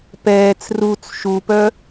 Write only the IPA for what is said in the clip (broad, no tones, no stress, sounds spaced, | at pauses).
p ɛː t͡s r u t͡s ʃ u p œ